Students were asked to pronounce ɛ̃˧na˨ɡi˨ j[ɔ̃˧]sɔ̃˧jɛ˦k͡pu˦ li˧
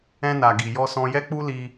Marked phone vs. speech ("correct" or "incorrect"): incorrect